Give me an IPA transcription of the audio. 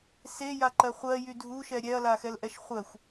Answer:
s e j a ǃ ɜ χʷ ɜ j y dʱ u ʃ ɛ ɾʲ ɛ ɐ̯ l a x ɛ l ʔ ɛ ʃ χʷ ɜ xʷ

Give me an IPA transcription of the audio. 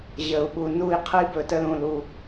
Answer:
ʑ ə˨ u̯ ɓ u˨ n u˦˨ i̯ qʰ ə˦ i̯ b ɵ˨ t ə˧ l ũ˨ l u˨

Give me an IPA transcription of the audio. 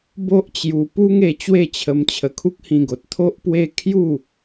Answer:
b o˦ ʔ t͡ɕ j u˧ p u˦ ŋ e˧ t͡ɕ w e˥˧ t͡ɕʰ ə˧ m t͡ɕʰ ə˧ kʰ u˦ k̚ h ĩ˧ ɡ o˨ t̚ t̪ʰ o˦ ʔ p w e˦ kʰ j u˥˧

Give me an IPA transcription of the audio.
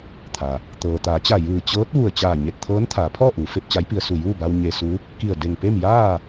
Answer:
t̪ʰ a˩ | t̪ ɤː˩ t̪ aː˩˧ t͡ɕ a˧˩ j ɯː˧˩ t͡ɕ ɤː˧˥ t̚ ʋ u˧˩ ə̯ t͡ɕ aː˧˩ ɲ e˧˩ t̚ t̪ʰ ɤː˧˥ n t̪ʰ aː˩˧ pʰ ɔː˥˨ ʔ uː˩˧ f e˧ p̚ t͡ɕ a˧˥ j p i˧ ə̯ s u˧˩ j uː˥˨ b a˧ w ɲ e˧ s u˧˥ | k i˧˩ ə̯ d e˧˩ ŋ p e˥˨ m j aː˥˨

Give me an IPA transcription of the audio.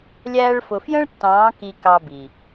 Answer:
lʲ æː˧ ɭ f ʊ˨ f j ə̃˦ ɭ tː ɑ̃ː˨˦ k i˧ k ɑ˧ b i˨

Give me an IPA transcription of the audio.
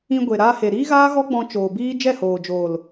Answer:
ĩ˧ ɡʷ e˨ ɾ aː˧ h e˨ ɾ iː˦ ɣ aː˦ ɣ ɔ˦ ɡ͡b ɔ̃˧ t͡ʃ oː˨ b iː˦ d͡ʒ ɛ˦˨ h oː˨ d͡ʒ oː˨ l

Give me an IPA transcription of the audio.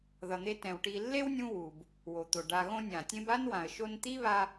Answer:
ð ʌ˨ n̪ e˦ t ɛ̃˨ w ʈ i˨ lː e˥ w nʲ ũ˦ w u˩ b | w o˩ t̪ o˩ ɖ a˨ ɣ õ˦ nʲ ã˩ tʲ ẽ˦ b a˥ n w ã˩ ə̯ ʃ o˦ n t̪ i˥ β a˦

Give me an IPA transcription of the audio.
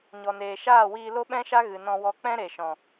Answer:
ɲ ɔ˨ n eː˨ ʃ aː˦˨ w iː˧ l o˦ ɓ ɛ̃˦ ʃ a˦ ɣ ɨ˨ n ɔ̃˧ w ɔ˧ k͡p ɛ̃˦ ɾ e˨ ʃ ɔ̃˨

